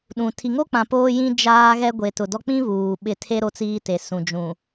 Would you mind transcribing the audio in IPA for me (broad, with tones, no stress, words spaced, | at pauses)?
ɗũ˨ tʰi˨ŋo˦k͡pã˨ poː˦jĩ˦ d͡ʒaː˦ɣɛ˦ ɡʷe˨tʊ˨dɔ˦ k͡pĩ˦ βuː˨ɓɪ˦˨ tʰe˦ ɾo˦t͡siː˦te˨ sũ˨d͡ʒũ˨